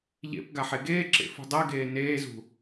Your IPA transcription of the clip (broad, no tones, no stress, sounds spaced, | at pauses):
ʎ ḛ p ɡ a ħ e ɡ eː ǁ ḛ f ṳ dˤ ɛ ɡ eː n eː z ṳ